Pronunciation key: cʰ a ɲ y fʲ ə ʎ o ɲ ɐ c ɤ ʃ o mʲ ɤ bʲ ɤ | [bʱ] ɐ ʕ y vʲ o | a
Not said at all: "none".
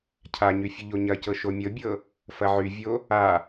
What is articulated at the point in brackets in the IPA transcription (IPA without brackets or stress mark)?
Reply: f